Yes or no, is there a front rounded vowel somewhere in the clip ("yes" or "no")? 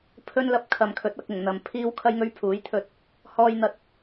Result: no